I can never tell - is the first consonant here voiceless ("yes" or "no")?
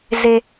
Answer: no